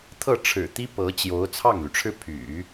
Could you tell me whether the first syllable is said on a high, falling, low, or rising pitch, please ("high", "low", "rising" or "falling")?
falling